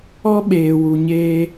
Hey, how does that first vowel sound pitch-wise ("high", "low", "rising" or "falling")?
high